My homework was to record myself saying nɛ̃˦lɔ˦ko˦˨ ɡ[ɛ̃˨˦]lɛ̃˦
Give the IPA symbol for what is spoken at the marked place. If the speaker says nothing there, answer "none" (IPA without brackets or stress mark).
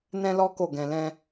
ɛ̃˧